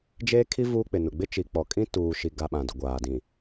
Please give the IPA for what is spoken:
d͡ʒeː˦kʰi˦ vuː˦k͡pɪ˨nʊ˨ ɡ͡bɪ˦ t͡ʃi˨k͡pɔ˨kʼĩ˦ tuː˨ʃi˨ɡa˨ ɓã˨dʊ˨ ɡʷaː˨dĩ˨

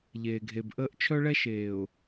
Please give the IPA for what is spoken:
ʎeː˨ɡʱe˨bʔəː˦ʔ t͡ʃʰœ˦ɭɛ˦ʃeː˨ʊ̯

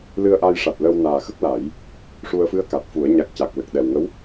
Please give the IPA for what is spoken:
lɨ˧ə̯ʔa˧jʂa˨˩t̚lə˧w naː˨˩xə˦˥k̚la˨˩˦j | ʂu˧ə̯fɨ˧˥ə̯ka˨˩t̚ fu˨˩˦ə̯ ɲa˨˩k̚ca˨˩k̚lə˨˩k̚ ɗɛ˨˩wŋə˧˥w

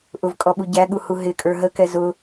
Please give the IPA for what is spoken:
ʔʊvkʼɔɓu ɟæɠuhu ɦɪkʼə˞ ɦəkɛ zʊ

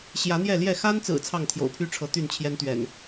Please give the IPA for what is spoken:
ɕjä˨˦n̪jɛ˥˨ljɛ˥˨ xa˦nt͡sɹ̩˨˩ t͡sʰɑ˥˨ŋt̪ʰjo̰˨˩ʊ̯pʰy˦ʈ͡ʂʰɤ˨˦ t̪y˥˨nt͡ɕʰjɛ˦nt̪ɥɛ̰˨˩n

